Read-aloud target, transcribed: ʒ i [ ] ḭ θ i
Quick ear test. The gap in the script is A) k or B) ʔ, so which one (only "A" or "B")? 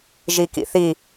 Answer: A